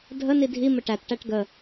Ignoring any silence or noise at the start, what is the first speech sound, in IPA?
dʱ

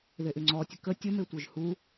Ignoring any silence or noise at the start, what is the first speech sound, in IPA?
ð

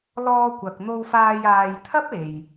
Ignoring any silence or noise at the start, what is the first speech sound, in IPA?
l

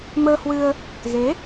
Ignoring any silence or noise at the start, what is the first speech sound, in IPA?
m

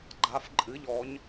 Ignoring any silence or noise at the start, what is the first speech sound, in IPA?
ɡ͡ǃ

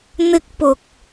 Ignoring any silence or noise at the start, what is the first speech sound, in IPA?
n̪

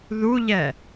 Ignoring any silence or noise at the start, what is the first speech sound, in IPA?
ð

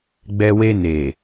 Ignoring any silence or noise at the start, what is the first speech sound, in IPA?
ɡ͡b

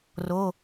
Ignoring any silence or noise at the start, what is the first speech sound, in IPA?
r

